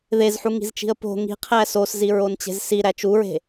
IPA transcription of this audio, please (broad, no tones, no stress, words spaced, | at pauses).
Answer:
ðezħuŋi̤zt͡ʃi̤ə̯ po̤ ŋi̤qʰæ sosziɹont͡ɕe̤z siɾæ t͡ʃuɹe̤